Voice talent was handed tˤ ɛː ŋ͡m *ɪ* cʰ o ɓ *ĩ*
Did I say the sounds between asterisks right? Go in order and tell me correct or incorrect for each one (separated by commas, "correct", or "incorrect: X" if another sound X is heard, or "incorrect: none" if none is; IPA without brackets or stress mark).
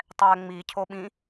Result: incorrect: i, correct